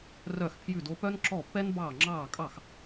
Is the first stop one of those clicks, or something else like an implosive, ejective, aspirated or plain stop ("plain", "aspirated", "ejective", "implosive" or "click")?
aspirated